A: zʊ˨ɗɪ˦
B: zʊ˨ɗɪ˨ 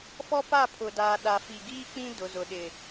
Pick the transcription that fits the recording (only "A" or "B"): B